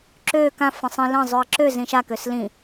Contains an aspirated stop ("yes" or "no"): no